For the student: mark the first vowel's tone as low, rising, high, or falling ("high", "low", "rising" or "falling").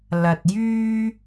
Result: low